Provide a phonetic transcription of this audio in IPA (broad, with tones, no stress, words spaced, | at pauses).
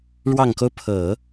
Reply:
ɻwɑ˨˩ŋko˦ʊ̯ pʰɤ˨˩˦